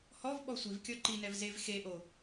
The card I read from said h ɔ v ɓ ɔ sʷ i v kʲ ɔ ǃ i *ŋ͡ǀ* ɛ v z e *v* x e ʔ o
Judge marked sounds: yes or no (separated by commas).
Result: no, yes